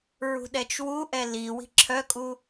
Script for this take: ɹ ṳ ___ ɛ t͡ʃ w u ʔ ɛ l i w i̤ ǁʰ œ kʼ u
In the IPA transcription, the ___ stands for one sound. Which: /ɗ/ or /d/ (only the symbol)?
ɗ